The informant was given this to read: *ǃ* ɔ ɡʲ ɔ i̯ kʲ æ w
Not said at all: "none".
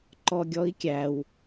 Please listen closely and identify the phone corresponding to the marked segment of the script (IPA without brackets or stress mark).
ǃ